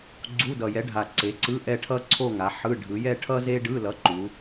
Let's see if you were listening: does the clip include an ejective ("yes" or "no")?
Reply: no